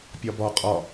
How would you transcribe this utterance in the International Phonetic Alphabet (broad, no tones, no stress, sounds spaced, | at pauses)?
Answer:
pʲ ɒ b ɒ qʼ ɒ